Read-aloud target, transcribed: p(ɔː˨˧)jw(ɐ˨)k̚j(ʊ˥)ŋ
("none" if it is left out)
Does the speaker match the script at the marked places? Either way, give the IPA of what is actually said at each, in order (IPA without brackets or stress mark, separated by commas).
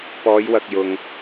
ɔː˨˧, ɐ˨, ʊ˨